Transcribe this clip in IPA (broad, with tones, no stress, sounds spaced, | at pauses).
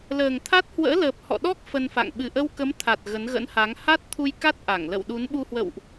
l əː˨˩ ŋ t̪ʰ a˦˥ t̚ h w ə̰ː˧˥ l əː˨˩ p̚ h ɔ̰˧˨ ɗ ɔ˦˥ k̚ f ə˧ n f a̰˧˨ ŋ ɓ ɨ˧˩ ʔ ə˧ w k ə˨˦ m t̪ʰ a˨˩ t̚ ɣ ə˨˦ n ɣ ə̰˧˥ n h a˨˦ ŋ h a˦˥ t̚ t̪ʰ u˧ j k a˦˥ t̚ ʔ a˧˩ ŋ l ə̰˧˨ w ɗ u˨˦ n ɓ u˧ h w ə̰˧˨ w ʔ